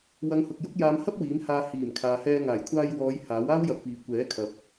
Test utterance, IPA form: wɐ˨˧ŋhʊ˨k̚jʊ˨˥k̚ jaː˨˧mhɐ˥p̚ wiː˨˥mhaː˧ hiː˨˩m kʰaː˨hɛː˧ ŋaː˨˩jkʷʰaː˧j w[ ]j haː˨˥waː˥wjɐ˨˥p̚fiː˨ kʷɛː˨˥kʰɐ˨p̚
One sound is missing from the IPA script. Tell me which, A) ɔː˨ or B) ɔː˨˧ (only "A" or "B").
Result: B